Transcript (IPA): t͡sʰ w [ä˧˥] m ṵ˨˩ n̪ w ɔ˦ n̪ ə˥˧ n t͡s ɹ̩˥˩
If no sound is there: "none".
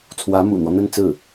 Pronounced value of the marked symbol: ä˧˥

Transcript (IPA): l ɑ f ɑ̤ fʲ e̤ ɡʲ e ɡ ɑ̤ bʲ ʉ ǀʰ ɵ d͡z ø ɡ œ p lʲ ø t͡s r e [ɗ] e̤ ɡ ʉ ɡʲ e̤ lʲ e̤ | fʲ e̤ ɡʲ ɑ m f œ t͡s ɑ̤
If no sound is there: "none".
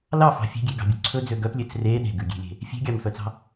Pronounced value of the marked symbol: ɗ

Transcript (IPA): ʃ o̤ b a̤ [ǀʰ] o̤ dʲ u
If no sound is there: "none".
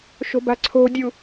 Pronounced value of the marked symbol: ǀʰ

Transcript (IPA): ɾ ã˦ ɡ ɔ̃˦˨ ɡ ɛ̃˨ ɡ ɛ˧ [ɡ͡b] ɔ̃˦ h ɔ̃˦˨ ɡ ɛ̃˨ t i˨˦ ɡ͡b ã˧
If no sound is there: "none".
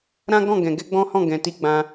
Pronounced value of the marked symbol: ɡ͡b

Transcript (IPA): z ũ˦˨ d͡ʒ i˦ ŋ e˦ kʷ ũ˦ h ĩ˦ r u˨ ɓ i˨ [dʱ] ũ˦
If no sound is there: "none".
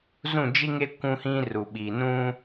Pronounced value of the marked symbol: n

